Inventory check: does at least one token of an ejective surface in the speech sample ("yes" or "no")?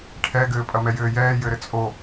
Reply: yes